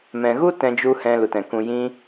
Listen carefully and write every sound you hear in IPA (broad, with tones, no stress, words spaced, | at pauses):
mɛ̃˨ɣu˦ tɛ̃˧d͡ʒu˧ hɛ̃˧lu˨tɛ̃˨ kũ˨ jĩ˧